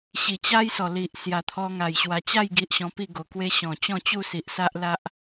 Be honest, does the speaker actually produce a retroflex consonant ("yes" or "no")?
no